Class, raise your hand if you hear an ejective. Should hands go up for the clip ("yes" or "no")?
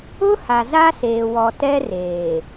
no